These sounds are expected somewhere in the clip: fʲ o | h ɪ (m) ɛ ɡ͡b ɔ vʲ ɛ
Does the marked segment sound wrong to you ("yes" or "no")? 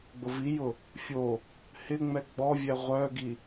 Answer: yes